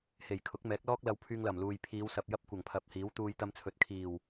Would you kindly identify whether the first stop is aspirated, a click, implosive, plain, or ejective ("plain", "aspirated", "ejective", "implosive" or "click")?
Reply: aspirated